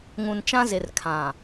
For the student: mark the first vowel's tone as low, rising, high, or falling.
low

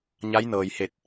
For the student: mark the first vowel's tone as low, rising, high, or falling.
rising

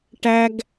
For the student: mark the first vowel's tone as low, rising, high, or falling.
high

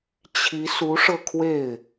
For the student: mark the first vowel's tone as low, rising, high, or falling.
rising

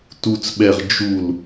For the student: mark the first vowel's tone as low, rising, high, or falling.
low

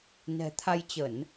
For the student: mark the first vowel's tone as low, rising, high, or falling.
low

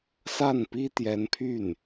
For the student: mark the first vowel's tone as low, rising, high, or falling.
falling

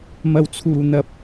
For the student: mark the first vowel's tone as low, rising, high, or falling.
low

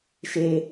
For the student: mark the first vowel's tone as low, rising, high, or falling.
low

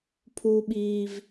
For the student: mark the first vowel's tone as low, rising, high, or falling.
high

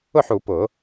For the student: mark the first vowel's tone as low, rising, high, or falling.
falling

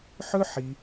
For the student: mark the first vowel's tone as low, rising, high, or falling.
high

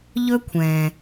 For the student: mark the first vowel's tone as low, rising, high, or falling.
high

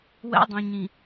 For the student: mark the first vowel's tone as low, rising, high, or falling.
high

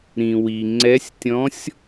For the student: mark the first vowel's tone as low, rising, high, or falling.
low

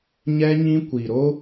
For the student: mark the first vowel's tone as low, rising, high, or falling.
high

